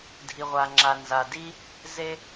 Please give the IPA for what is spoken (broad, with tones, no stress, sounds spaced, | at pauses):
dʱ i˩ ʁʷ a˩ ŋ͡ǁ a˩ n z a˩ d i˥ | z e˥